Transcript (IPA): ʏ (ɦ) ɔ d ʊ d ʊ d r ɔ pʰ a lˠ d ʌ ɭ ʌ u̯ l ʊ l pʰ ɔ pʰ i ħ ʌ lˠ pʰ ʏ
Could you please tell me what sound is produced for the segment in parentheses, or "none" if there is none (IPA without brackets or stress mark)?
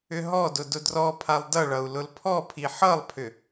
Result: ɦ